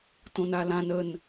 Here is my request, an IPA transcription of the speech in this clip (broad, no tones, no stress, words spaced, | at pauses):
tõnalãn ən